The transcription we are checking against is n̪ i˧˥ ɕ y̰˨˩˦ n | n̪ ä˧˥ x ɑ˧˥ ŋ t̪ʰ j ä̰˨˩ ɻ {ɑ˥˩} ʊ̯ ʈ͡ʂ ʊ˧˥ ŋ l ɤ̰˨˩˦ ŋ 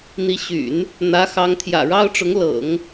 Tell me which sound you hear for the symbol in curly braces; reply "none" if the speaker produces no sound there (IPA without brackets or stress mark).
ɑ˥